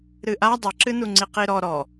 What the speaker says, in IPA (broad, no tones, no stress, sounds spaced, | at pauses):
ɾ ɨ ʔ a dˤ ɨ ǁ ɨ n u ŋ͡ǀ i q i ɾ ɔ ɾ ɔ